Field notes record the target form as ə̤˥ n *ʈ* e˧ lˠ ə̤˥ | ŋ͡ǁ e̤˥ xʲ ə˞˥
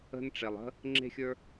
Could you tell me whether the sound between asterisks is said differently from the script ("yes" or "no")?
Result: yes